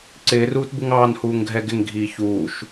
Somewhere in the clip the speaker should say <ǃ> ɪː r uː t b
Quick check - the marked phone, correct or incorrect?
incorrect: ǀ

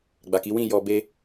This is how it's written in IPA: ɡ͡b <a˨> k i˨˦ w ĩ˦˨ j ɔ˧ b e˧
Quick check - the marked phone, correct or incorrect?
correct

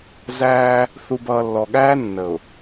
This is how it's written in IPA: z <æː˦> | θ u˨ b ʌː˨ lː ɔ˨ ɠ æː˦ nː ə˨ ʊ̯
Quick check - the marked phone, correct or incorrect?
correct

